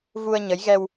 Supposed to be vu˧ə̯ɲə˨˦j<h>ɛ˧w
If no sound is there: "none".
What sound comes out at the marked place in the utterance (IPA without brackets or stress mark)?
ɣ